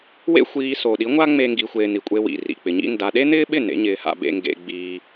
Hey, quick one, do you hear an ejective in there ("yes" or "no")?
yes